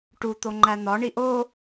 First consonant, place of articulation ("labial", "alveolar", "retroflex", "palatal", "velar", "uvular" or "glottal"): retroflex